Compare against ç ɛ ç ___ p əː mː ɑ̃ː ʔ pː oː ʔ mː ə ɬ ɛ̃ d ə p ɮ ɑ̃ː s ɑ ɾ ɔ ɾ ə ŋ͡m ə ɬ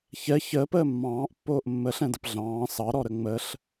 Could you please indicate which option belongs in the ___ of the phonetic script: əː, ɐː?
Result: əː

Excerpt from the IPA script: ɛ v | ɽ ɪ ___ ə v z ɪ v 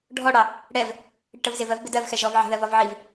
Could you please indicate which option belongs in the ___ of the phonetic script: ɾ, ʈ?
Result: ʈ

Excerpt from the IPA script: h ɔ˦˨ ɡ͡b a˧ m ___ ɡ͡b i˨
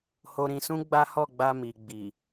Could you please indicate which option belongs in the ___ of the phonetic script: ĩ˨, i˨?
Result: i˨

